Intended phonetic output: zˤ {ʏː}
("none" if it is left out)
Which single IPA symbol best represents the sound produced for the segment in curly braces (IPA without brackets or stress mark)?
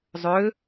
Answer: ʏː